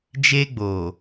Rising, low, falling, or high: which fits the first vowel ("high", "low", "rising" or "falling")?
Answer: high